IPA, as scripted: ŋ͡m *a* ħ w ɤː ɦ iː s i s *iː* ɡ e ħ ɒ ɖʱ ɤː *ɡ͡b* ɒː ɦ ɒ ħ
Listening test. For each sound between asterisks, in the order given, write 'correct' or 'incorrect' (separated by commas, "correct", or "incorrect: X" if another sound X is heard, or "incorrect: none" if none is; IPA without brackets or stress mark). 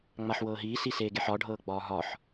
correct, incorrect: eː, correct